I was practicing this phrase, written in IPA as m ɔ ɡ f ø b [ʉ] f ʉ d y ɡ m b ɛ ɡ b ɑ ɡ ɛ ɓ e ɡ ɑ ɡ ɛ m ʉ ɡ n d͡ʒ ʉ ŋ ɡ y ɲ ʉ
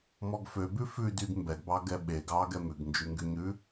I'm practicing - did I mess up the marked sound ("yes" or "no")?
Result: no